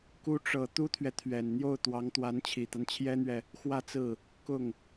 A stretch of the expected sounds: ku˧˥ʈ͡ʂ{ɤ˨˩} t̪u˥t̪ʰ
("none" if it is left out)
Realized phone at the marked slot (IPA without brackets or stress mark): ɤ˨˩